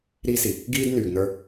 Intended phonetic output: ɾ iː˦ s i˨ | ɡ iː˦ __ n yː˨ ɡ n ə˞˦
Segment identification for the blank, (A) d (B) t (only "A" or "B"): A